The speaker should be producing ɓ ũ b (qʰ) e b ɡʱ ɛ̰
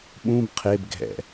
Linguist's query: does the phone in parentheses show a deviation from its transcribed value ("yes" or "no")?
no